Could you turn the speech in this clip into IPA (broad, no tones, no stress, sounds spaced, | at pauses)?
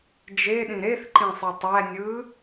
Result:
d͡ʒ e ɗ ĩ ɾ e θ ǃ ĩ sˤ y tˤ æ nʲ ɯ